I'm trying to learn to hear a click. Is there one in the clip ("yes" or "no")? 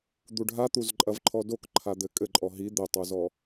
yes